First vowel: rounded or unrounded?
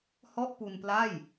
rounded